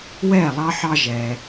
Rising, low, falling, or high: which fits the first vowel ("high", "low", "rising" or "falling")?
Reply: falling